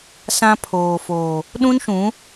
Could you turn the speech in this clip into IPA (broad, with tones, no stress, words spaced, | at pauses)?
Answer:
sã˦ pʰoː˨foː˨ | ɗũ˦nʃũ˨˦